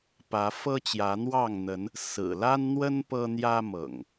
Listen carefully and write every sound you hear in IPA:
pä˨˦fɤ˦t͡ɕjä˨˦ n̪wɑ˥˨ŋn̪ə˨˦n | sɹ̩˨˩la˦nn̪wə˦n pɤ˦n̪jä˦mɤ̰˨˩ŋ

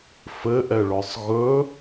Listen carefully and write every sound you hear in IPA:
fɘʔɛɭɔsˤ ɣɵ

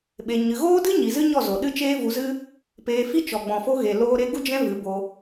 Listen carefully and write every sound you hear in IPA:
ɓe˧ɲɨ˧ ɣoː˦dɨ˦ɲi˨ zɨ˦ɲɔ˦˨zo˨ ɗɨ˦t͡ʃeː˦vu˧zɨ˦ | peː˧fi˦ t͡ʃɔ˨ɡ͡bɔ̃˨fo˧ɣe˨ loː˦ɾe˦ ɡu˦ d͡ʒɛ̃˦ vɨ˨˦bo˧

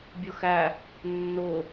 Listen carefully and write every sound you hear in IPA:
bʲʊxæ | nːʊ

